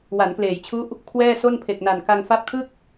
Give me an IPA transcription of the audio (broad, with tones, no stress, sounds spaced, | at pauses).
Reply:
w a˩˦ n k l eː˩˦ j t͡ɕʰ u˦˥ ʔ | kʰ w ɛː˥˩ s o˥˩ n pʰ e˨˩ k̚ n a˨˩ n k a˧ ŋ f a˦˥ p̚ kʰ ɯ˥˩ k̚